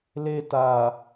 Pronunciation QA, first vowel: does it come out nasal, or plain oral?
oral